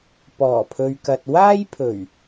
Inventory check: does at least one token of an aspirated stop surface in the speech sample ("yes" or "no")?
yes